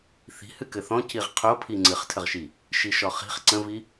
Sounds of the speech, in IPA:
θ i̤ h ɨ k ɘ θ ɔ̃ c i ʁ qʰ o pʰ i ŋ͡ǀ ɨ χ tʰ ə ʁ ʃ i | ʃ i ʃ ɔ χ i̤ χ ǀ ə̃ v i

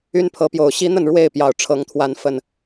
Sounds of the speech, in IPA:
y˦ n pʰ ɤ˨˦ p j o˨˩ ʊ̯ ɕ i˦ n̪ ə˥˨ n ɻ w e˥˨ ɪ̯ p j ɑ˨˩ ʊ̯ ʈ͡ʂʰ ɤ˨˦ ŋ t̪ʰ w a˨˦ n f ə˨˩ n

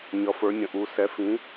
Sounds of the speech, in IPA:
ɲ ʌ˧˥ f ə˞˧˥ nʲ ə̃˧˥ ʔ u˧˥ s ɛ˧˥ f ĩ˧˥

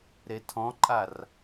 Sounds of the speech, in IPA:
ɾ e tʰ ɔ̃ ǃʼ a r

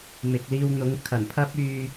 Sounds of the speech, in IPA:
m ɪ˨ k̚ l iː˧ w n̪ ʊ˨˥ ŋ kʰ ɐ˨˩ n pʰ ɐ˥ p̚ yː˧

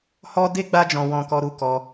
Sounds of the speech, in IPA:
h ɔ˧ d e˦ ɡ͡b a˧ d͡ʒ ɔ̃˨ w ɔ̃˧ k ɔ˧ ɾ u˦ k ɔ˧

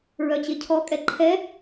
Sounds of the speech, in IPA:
ɹ œ t͡ɕ e cʰ ɔ kʼ ɛ ǃʰ ɛ

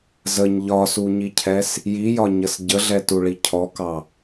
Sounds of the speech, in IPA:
z ə ɲ ʎ ɒ s u ɲ i cʰ ɛ s | j i j ɒ ɲ ə s ɟ ə ɮ ɛ t u ɭ i cʰ ɔ k ɑ

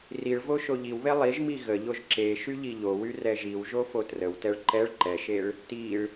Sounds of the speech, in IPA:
r i ɭ v o ʃ o ʎ i w β e lˠ i ʒ m i ɣ ə ʎ o ʒ ǁ e ʃ y ʎ i ʎ o w y r ɛ ʒ i w ʒ o f o t r ə w t ɛ ɭ ǃ ɛ ɭ ǃ ɛ ʃ e ɭ | t i ɭ

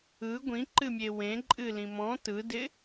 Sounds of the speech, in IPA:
ɯ ɡʷ ĩ ǃ ɨ mʲ e w ẽ ǃʼ ɨ l ĩ m ɔ̃ t ɯ d ɪ

